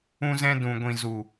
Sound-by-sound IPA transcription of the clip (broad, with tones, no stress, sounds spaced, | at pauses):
ũ˧ z ɛ̃˧ d ũ˨ ɡʷ ĩ˨ z u˨